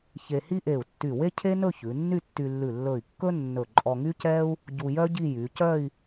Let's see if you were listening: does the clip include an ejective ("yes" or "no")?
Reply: yes